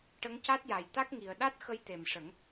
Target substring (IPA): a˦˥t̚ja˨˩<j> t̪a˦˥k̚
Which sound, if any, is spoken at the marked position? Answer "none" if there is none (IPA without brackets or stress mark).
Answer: j